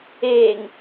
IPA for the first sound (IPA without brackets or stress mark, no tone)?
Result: eː